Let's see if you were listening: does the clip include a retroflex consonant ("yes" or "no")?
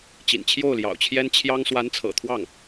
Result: no